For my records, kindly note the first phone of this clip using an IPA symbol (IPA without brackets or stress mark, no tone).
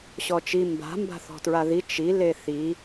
ɕ